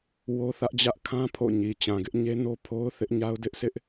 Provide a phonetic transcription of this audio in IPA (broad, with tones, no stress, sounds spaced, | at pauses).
w o˦ θ ä˦ ʔ d͡ʑ ä˦ ʔ kʰ ã˦ pʰ o̰˦˨ ɲ i˨ t͡ɕ ã˨ ɡ ɪ˦ ʔ ɲ e˦ n o˦ pʰ o˦ ʊ̯ θ ɪ˦ ʔ ɲ a˦ ʊ̯ d ɪ˦ ʔ sʰ ɪ˦ ʔ